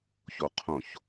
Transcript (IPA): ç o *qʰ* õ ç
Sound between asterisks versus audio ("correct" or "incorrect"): correct